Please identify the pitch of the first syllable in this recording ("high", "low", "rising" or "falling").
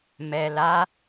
low